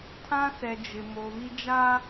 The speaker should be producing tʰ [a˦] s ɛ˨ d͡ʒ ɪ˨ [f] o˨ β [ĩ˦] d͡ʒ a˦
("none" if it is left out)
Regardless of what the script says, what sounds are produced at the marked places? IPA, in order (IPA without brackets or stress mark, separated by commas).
ã˦, m, i˦